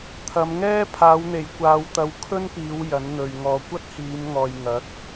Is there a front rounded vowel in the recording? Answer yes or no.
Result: no